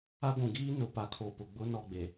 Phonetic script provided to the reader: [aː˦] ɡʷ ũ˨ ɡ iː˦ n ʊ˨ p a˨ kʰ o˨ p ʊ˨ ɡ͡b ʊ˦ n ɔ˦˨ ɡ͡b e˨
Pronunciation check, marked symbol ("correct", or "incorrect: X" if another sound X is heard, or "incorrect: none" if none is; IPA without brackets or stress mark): incorrect: a˦